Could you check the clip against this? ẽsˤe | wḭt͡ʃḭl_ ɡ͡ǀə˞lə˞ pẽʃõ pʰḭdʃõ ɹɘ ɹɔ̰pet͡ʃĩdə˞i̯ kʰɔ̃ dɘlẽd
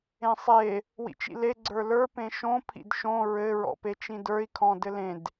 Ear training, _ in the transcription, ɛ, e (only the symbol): e